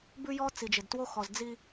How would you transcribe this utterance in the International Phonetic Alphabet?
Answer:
bʉ˦jɔ˦ t͡si˨d͡ʒɪ˨dtwo˦ xɔ˨zd͡zi˦

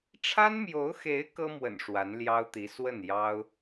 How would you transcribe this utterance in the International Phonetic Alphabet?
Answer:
ʈ͡ʂʰa˥nmjo˧˥ʊ̯xe˧˥ɪ̯ kɤ˥mwə̰˨˩n ʂwa˧˥nljɑ˥ʊ̯t̪i˧˥ swə˥˩njɑ˥ʊ̯

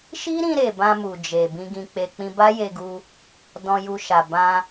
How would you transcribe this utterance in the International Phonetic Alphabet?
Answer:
ʃi˦ɾĩ˧ɾe˨ bã˧mu˨ d͡ʒe˨ bĩ˧ɡĩ˧k͡pe˧ k͡pĩ˧ba˦je˧ɡu˧ | dɔ̃˧ju˧ ʃa˨bã˧

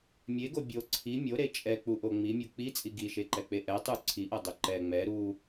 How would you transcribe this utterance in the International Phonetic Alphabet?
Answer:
mʲeɡo bʲo ǀʰi mʲoɾe t͡ʃʼɛk͡puʔo ŋ͡mimʲu k͡pit͡sʼi ɡiʃeǃɛk͡pe ʔɛ tˤu ǀʰiʔɤdˤo ǃɛ ŋ͡mɛ ɾu

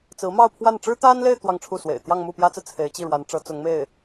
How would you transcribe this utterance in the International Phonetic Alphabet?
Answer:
t͡sɹ̩˧˥mɑ˥˧ʊ̯pʰwa˥˩n ʈ͡ʂɻ̩˥t̪a˥nle˥˧ɪ̯ t̪wɑ˥˧ŋʈ͡ʂʰu˥˩swḛ˨˩ɪ̯ t̪jɑ˥˧ŋmu˥˩pjä˥t͡sɹ̩˨ t͡sʰe˧˥ɪ̯t͡ɕi˥˩ɻwa˧˥nʈ͡ʂɤ˧˥ t͡sʊ˧˥ŋme˥˩ɪ̯

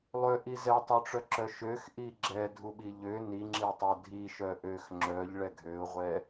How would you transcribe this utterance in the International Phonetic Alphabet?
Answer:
lˠøʔi zɛtˤøʈ͡ʂœǁœ ʃøxʔi ɡ͡ǁɛdʱuɓi ʎø niŋ͡ǁitˤœ dʱiʃœ ʔøx ŋ͡ǁœʎɭɛ ɡʱøʊ̯ʁʷɛ

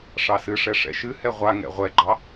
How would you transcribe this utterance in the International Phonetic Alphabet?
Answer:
ʂɑsɨʂɛ ʂɛ̰ʃɨhɛ ʁʷaŋɛ̰ ʁʷɛɡ͡ǃɑ

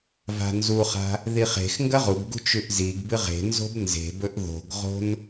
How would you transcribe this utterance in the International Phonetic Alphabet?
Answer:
va̤nzuχa̤ | ðiχe̤xŋɡɐ ʁubɡṳ t͡ʃʉʔziɡbɨ ʁe̤nzo̤b nze̤bɵʔ ðo̤ɡʁo̤n

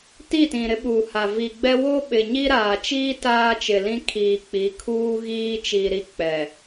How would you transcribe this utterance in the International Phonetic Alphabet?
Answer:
ti˦˨tĩ˨ ɾɪ˦ɓuː˨ha˨ vi˨ɡ͡bɛ˦ wo˦ɓɪ˨ ɲi˦ɾaː˨t͡ʃiː˦ taː˦t͡ʃɪ˨lĩ˦ kʰiː˨k͡pi˨˦ kʰuː˦ɣiː˦t͡ʃi˨ɾi˦ k͡pɛ˨

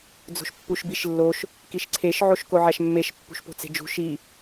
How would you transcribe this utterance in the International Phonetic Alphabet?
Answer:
d͡zo̤ʃpːuʃbiʃlːoʃ | kiʃǀʰeʃ ʕoʃkoʕæʃmːeʃ pːṳʃpo̤t͡se̤d͡ʒṳ ʃi

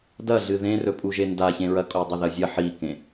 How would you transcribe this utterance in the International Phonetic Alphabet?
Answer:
dɐɮɨ ðẽrɵpʼu ʒendaçẽɹɐ kʼodˤɨðɐzʲɐ ħikẽ

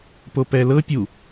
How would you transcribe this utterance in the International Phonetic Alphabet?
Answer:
popɛlɤ pʲu

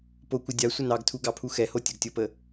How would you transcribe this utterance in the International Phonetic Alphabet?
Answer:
pokʷə dʲa sʷənɑɡtʰu ɡɑpʰuxɛho tʲəɡtʲopə

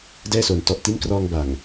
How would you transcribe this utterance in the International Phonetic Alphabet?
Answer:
dɛː˥˩soː˨˩n tɔ˨˩ʔ ti˦˥n krɔː˧ŋ ba˨˩ŋ

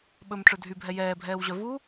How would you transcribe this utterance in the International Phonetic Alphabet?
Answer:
ɓɵmʈ͡ʂɵ dʱybʱɛ jɛːbʱɛːwʑœ vu

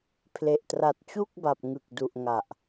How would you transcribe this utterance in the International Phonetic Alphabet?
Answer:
pʰle˨˩ʔtra˨˩t̚t͡ɕu˥˩k̚ ba˨˩p̚ ŋɯ˨˩k̚du˨˩ʔŋa˨˩ʔ

